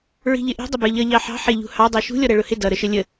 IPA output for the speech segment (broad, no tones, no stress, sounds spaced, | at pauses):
ɹ i̤ ʎ ɪ ʔ i̤ dˤ ə b ə˞ ʎ ʌ ʎ ɑ ħ ɑ̤ ħ ɪ ʎ ṳ h ɑ dˤ ɛ ʃ ṳ lʲ ɔ ɾ æ ɭ ʊ h ɪ d ʌ ɾ ə ʃ ə lʲ ə